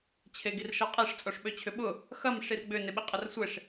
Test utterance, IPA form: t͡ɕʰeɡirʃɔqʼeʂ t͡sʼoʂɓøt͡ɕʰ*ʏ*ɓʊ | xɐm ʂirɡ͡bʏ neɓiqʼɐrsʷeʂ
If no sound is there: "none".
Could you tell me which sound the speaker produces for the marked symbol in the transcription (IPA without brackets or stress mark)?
ʏ